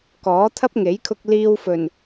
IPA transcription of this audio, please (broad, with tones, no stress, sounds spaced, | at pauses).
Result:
k ɔː˨˥ t̪ʰ ɐ˥ p̚ ŋ e˨˥ j kʰ ʊ˧ k̚ l iː˧ w f ɵ˨˩ n